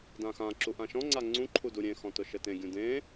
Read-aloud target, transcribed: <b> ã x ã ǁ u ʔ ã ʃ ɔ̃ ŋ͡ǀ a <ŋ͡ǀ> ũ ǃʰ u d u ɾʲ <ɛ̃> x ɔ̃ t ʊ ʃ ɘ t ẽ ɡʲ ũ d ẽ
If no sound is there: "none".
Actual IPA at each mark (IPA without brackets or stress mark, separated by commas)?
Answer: d, ŋ͡ǀ, ẽ